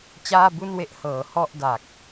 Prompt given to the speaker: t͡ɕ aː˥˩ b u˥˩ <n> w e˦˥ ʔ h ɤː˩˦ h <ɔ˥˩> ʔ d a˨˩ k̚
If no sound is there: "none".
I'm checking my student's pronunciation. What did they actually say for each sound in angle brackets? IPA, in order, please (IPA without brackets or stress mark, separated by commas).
n, ɔ˥˩